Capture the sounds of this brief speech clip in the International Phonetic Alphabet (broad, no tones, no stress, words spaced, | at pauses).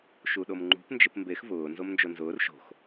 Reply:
ʃuɗomŋ͡ǃṳp nd͡ʒɪpmbex vʊː nzomnd͡ʒonzʊːr ʃo̤x